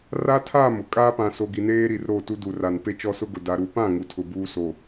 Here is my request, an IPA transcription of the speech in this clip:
r a˦ tʰ aː˦˨ m ʊ˨ kʼ aː˦ p ã˨ s o˨ ɡ i˨ n eː˦ ɾ i˨ r ɾ o˦˨ t u˦ d u˨ r a˨ n p e˦ t͡ʃ ɔ˦ s ʊ˦ ɡ ʊ˨ d a˨ ɾ u˨ p ã˦˨ ŋ u˨ tʰ ʊ˨ b uː˦ s o˨

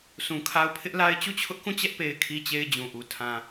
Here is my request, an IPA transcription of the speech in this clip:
s ũ˨ kʰ a˦ ʊ̯ pʰ ɪ˦ ʔ l a˦ ɪ̯ t͡ɕ u˦˨ t͡ɕʰ ʊ˦ ʔ k ũ˦˨ t͡ɕ ɛ˦ ʔ p e˨ ɪ̯ kʰ i˦ t͡ɕ e˦ ɪ̯ d͡ʑ ũ˨ ʔ u˨ tʰ ã˨

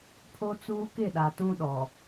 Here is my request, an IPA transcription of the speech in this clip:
pʰ o˦ t͡s uː˦ k ɪ˦˨ ɗ a˨ t ũ˦ ɗ ɔ˨

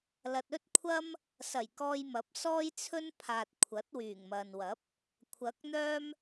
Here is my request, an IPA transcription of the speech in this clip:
l ɐ˨ t̚ ɵ˥ t̚ kʷʰ ɐ˥ m | s ɐ˨˩ j k ɔː˧ j m ɐ˨˥ p̚ s ɔː˥ j t͡sʰ ɵ˥ n pʰ aː˨ t̚ kʷʰ ɐ˨˥ t̚ w yː˨˩ ŋ m ɐ˨ n w ɐ˨˥ p̚ | kʷʰ ɐ˨˥ k̚ n̪ œː˥ m

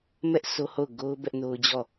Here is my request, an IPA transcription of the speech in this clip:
m ɛ˦ ʔ s o˦ h o˦˨ ʊ̯ ɡ o˦ ʊ̯ b ɛ˦ ʔ n o˦ ʊ̯ d͡ʑ ɔ˦˨

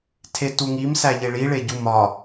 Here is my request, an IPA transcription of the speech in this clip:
tʰ e t u ŋ i m s æ ʎ e ɭ i ɭ e ɟ u m ɒ

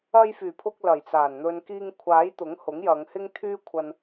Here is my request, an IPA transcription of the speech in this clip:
ɐ˧ j f yː˨˩ pʰ ʊ˧ k̚ l ɐ˨˩ j t͡s aː˨˩ n n̪ ɵ˨ n k iː˧ ŋ kʷʰ aː˨˥ j t̪ ʊ˨˥ ŋ h ʊ˨˥ ŋ j ɐ˨˧ ŋ h ɪ˥ ŋ t̪ʰ yː˥ kʷʰ ɐ˧ n

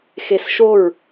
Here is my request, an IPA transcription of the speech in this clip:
x e s ʃ o ɹ

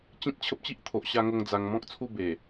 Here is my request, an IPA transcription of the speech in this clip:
t͡ɕ ĩ˦ t̚ t͡ɕʰ ə˦ p̚ t͡ɕ i˦ ʔ t̪ʰ o˨ ʔ ɕ a˧ ŋ o˧ ŋ d͡z a˧ ŋ m ɔ̃˦ k̚ t͡sʰ u˥˧ b e˨˩

